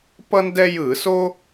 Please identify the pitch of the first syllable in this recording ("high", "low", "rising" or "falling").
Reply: high